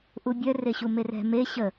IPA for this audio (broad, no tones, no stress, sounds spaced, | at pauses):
ʔ u bʲ œ r e ɕ u m e r ɛ̤ m e ɕ ə